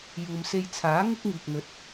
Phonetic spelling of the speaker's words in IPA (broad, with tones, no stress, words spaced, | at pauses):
juː˨mse˧j t͡sʰaː˨˥ ŋɪ˥k̚ŋiː˨k̚n̪ɵ˨˥t̚